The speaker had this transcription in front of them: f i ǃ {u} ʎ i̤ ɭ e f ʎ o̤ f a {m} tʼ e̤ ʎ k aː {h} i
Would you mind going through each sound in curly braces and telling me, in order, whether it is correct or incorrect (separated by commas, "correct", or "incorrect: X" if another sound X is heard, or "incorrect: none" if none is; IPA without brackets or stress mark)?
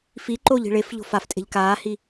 incorrect: o, incorrect: f, correct